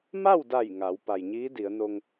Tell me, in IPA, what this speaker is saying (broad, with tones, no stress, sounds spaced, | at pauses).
m a˥˨ w d a˧˩ j ŋ a˩˧ w p a˩ j ɲ iː˧˥ d i˩˧ ə̯ n o˧ ŋ